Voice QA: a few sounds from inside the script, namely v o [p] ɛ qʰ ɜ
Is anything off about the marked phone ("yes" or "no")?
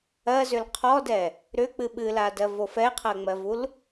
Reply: yes